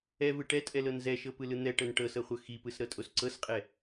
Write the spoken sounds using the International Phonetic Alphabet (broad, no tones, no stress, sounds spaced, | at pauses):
ɛ v ɯ ʈ ɛ tʼ ɛ l ɤ n z ɛ ʃ ɤ p ɯ l ɯ n̪ ɛ ʈ ɤ n ʈ ɤ s ɤ χʷ ɤ x i p ɯ s ɾ ɤ tʼ o s ǀ ɤ s qʼ ɛ